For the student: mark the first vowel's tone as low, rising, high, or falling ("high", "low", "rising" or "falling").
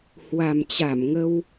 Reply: low